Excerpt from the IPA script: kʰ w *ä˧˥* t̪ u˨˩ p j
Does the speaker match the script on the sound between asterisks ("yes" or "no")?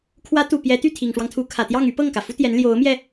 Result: yes